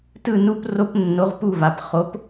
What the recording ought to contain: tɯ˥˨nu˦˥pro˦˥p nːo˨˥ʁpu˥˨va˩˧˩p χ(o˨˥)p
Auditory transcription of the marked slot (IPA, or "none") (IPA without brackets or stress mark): o˨˥